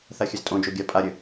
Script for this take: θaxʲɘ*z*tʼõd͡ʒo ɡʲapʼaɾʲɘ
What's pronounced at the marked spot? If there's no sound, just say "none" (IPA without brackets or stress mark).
z